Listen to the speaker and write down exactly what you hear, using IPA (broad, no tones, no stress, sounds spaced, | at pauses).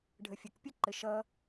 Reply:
ɖʱ ə fʲ ə k pʲ ʌ ǃ ɘ ʃ ʌ